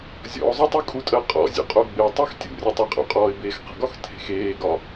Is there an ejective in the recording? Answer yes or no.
yes